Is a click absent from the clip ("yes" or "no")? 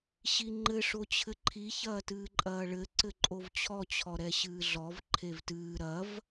no